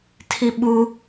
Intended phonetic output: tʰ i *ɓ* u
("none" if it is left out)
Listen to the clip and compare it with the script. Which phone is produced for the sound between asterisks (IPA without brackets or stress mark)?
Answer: ɓ